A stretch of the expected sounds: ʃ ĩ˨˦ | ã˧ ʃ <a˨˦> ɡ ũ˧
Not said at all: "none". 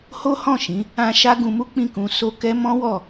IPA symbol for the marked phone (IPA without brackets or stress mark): a˦